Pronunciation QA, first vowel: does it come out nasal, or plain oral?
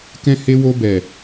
nasal